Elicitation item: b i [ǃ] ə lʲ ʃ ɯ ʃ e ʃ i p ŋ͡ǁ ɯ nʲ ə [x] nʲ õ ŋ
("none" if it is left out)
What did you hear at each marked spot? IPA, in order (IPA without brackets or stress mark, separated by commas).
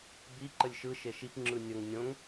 ǃ, ŋ